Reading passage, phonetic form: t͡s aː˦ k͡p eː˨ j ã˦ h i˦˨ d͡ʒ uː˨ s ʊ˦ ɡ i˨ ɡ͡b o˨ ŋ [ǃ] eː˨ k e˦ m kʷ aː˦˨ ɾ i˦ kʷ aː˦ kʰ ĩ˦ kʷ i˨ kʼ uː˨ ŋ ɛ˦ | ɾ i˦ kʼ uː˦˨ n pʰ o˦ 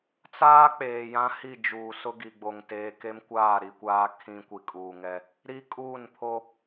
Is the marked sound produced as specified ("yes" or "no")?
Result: no